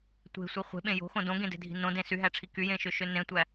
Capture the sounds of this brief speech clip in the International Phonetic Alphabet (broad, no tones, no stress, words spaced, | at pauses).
tʷe̤sʷi χʷe̤ɓẽ jo̤xõ dõɡẽde̤dʱi̤ nõdẽ syɦæʈ͡ʂʰi kyjẽʃøʃø nẽtʷæ